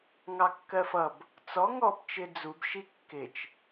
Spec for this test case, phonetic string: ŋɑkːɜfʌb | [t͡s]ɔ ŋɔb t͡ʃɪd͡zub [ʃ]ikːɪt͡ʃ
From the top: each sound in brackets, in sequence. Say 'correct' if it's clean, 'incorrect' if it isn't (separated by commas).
correct, correct